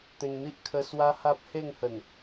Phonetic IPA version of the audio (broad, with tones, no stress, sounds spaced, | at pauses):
t̪ ẽ˧ ŋ n̪ i˦ ʔ kʰ ə˦ s w a˦ h a˦ p̚ h e˥˧ ŋ h ə˨˩ n